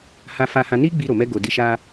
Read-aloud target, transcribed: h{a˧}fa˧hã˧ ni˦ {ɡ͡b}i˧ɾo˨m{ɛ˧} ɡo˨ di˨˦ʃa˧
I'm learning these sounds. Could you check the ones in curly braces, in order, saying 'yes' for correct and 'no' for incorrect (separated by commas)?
yes, yes, yes